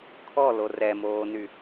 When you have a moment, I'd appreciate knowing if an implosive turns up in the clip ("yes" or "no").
no